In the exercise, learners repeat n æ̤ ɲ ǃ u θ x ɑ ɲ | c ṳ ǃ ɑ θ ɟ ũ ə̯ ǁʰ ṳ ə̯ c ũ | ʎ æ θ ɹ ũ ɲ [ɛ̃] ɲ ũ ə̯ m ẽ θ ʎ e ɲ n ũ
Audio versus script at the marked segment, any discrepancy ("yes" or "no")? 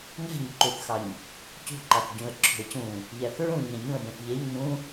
yes